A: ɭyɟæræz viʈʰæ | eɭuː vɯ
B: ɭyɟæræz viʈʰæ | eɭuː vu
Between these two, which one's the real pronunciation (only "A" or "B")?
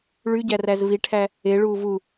B